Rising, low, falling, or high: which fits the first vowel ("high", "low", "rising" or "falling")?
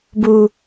high